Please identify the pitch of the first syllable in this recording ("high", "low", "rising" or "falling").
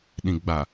low